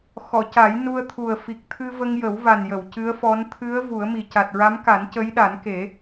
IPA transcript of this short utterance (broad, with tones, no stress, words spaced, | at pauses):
xɔ˨˩˨ca˨˩˦j nu˧ə̯t̪ʰu˨˩ə̯ fi˨˩k̚t̪ʰɨ˧ və˧ŋjə˨˩˦wva˨˩njə˨˩˨w cɨ˧˥ə̯fɔ˧˥n t̪ʰɨ˧˥ə̯ vu˨˩˦ə̯mi˨˩ ca˨˩t̚ɹa˧˥mka˨˩˦n cə˧˥jɗa˨˩˦nke˨˩˦